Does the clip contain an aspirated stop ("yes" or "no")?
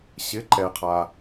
yes